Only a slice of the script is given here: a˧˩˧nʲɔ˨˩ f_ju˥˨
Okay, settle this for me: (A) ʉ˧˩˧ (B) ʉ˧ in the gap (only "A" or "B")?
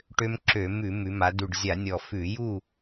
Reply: A